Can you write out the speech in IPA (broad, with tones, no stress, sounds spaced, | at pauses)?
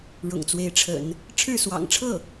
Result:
ɻ ʊ̰˨˩ ŋ t͡s w e˧˥ ɪ̯ ʈ͡ʂʰ ə̰˨˩˦ n | ʈ͡ʂʰ ɻ̩˥˩ s w ɑ̰˨˩ ŋ ʈ͡ʂʰ ɤ˥˩